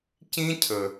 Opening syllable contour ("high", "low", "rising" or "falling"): high